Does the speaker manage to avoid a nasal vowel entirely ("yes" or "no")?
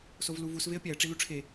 yes